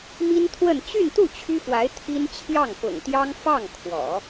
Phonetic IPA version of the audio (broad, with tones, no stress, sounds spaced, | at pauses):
m i˥ n t̪ʰ w ə˥˧ n t͡ɕ y˥˧ n t̪ u˥˩ t͡ɕʰ y˥ f w a˧˥ ɪ̯ t̪ʰ i˥ n t͡ɕʰ j ɑ˥˩ ŋ p ʊ̰˨˩ ŋ t̪ j ɑ˥ ŋ f ɑ˥˩ ŋ kʰ w ɔ̰˨˩˦